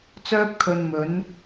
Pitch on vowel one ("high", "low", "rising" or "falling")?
high